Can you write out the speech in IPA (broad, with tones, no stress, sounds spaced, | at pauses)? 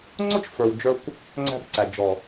ŋ͡ǀ ʊ˦ t͡ʃ f ə˞˨ w d͡ʒ ə˞˧ kʷ | ŋ͡ǀ æ̤˧ b ǀ æ˨ d͡ʒ ɔ˨